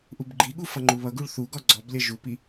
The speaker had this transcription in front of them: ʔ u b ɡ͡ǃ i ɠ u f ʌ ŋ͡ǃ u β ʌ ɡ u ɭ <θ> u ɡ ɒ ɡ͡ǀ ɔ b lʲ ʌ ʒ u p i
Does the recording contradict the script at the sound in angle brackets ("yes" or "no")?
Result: no